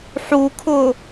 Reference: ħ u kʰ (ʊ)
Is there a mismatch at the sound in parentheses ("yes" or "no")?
no